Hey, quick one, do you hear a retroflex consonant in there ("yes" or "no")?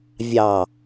no